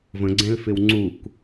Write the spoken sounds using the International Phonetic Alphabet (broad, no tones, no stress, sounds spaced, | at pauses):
v ə̃ ɡ͡ǀ ɛ̃ l f ɪ w ŋ͡ǀ u k